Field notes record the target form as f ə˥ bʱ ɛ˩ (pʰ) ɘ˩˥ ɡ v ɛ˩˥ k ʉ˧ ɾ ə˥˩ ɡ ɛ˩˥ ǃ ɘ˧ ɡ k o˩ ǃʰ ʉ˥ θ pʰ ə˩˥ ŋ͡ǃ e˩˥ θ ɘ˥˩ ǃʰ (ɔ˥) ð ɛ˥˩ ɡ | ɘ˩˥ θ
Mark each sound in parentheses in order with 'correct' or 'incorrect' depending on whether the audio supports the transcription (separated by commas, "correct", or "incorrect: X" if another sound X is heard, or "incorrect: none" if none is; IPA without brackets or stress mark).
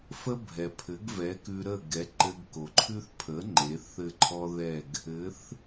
correct, correct